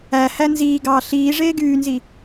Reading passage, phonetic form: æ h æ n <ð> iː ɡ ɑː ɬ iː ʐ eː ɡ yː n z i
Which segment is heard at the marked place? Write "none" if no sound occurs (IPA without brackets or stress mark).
z